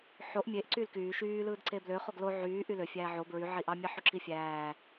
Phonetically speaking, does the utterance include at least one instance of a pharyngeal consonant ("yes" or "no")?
yes